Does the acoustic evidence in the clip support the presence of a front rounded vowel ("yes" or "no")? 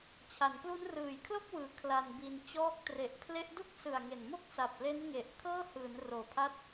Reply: no